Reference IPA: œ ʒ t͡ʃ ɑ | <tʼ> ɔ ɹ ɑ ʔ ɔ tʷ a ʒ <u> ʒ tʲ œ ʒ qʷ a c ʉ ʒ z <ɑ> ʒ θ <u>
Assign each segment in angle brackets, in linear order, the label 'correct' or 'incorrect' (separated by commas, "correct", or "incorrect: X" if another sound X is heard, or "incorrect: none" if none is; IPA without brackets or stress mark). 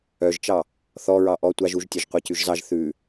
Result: incorrect: θ, correct, correct, incorrect: ʉ